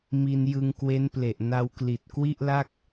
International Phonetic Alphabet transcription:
m i˧ n j ɯ˧ ŋ k w e˦˥ n p l e˨˩ ʔ n a˧ w k l i˨˩ t̚ k w i˥˩ ʔ l a˥˩ k̚

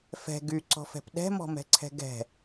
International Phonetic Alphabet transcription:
f ɛ̤ ɡ y ǀ ɔ̤ f ɛ̤ p ɗ ɛ̤ m ɔ̤ m ɛ̤ ǀʰ ɛ̤ ɡ ɛ̤

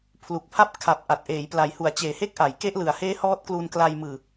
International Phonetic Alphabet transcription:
pʰ l u˨˩ k̚ pʰ a˥˩ p̚ kʰ a˨˩ p̚ ʔ a˨˩ t̚ ʔ eː˩˦ j p l a˩˦ j h u˩˦ a̯ t͡ɕ eː˨˩ h e˥˩ k̚ ʔ a˩˦ j k e˦˥ ʔ l ɯ˨˩ a̯ h eː˦˥ h ɔː˦˥ t̚ k l u˧ n k l a˧ j m ɯː˨˩

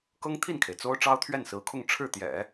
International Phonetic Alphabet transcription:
k ɤ˥ ŋ t̪ʰ i˥˩ n kʰ e˩ ɪ̯ t͡s o˥ ʊ̯ ʈ͡ʂ ɑ˥ ʊ̯ t̪ʰ ɥ ɛ˥˩ n s ɹ̩˧˥ kʰ ʊ˥˧ ŋ ʈ͡ʂʰ ɻ̩˥˩ t̪ j ɛ̰˨˩˦

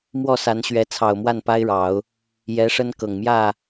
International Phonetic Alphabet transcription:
m w ɔ˥˩ s a˧˥ n ɕ ɥ ɛ˧˥ t͡sʰ ɑ˨˩ ʊ̯ m w a˥˩ n p a˥ ɪ̯ ɻ ɑ˨˩˦ ʊ̯ | j ɛ˧˥ ʂ ə˥ n k ɤ˨˩ ŋ m j ä˥˩

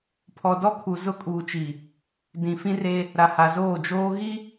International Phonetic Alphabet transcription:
pʰ ɔ˨ d ɔ˦ kʰ u˨ z ʊ˦ kʼ uː˨ t͡ʃ i˨ | d ĩ˨ f ĩ˦ r e˦ | ɾ a˨ h a˨ z oː˦˨ d͡ʒ oː˦ ɣ i˦

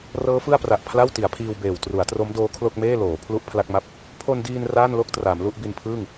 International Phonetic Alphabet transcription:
r ɤː˦˥ f ɯ˥˩ a̯ p r a˨˩ ʔ pʰ l a˥˩ w t i˩˦ a̯ pʰ iː˧ w b eː˨˩ w t r u˩˦ a̯ t r o˦˥ m d oː˦˥ kʰ l o˥˩ k̚ m eː˥˩ l oː˩˦ pʰ l u˥˩ ʔ pʰ l a˥˩ k̚ m a˥˩ p̚ | pʰ o˧ n d iː˧ n r aː˥˩ n l o˥˩ k̚ t r a˩˦ m l u˥˩ ʔ b i˧ n pʰ ɯː˥˩ ŋ

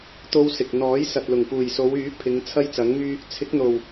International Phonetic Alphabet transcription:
t̪ o˥ w s ɪ˨ k̚ n̪ ɔː˨˥ j s ɐ˨ t̚ l ʊ˨˩ ŋ p uː˨˩ j s o˨˧ w yː˨˥ pʰ ɪ˨˧ ŋ t͡sʰ ɐ˥ j t͡s ɐ˨˥ ŋ m yː˥ | t͡sʰ ɪ˨˥ k̚ n̪ o˨˩ w

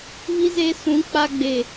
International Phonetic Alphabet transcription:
β i˦ z eː˦ s ũ˨˦ k͡p a˦ ɡ͡b e˨

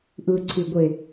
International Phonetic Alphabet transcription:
ʔ ɯ ǀʰ y ɡʷ e

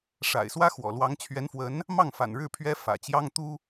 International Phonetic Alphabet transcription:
ʂ a̰˨˩ ɪ̯ s w ä˥ x w ɔ̰˨˩ l w ɑ˧˥ ŋ t͡ɕʰ ɥ ɛ˧˥ n f w ə˧˥ n | m ɑ˥˩ ŋ f a̰˨˩ n ɻ ɻ̩˥˩ pʰ ɥ ɛ˥ f ä̰˨˩ t͡ɕ j ɑ˥ ŋ t̪ u˥

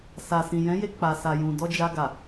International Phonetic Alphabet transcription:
s a˨ s ĩ˨ j ɛ̃˨˦ j e˧ k͡p a˨ s a˨ j ũ˨ d ɔ˧ d͡ʒ a˧ ɡ a˨

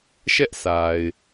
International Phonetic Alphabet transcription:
ʃ ɛ˦ ʔ sʰ a˨ ɪ̯

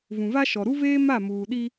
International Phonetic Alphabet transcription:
v ũ˨ v a˦ ʃ ɔ˨ ɾ u˦ v eː˦ m a˦˨ m uː˨ ɗ i˦

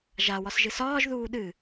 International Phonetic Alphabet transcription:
ʒ a w ɒ s ʒ ɨ s ɒː ʒ ð uː ɗ ɨ

